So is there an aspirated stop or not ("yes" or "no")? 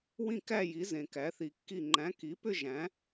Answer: no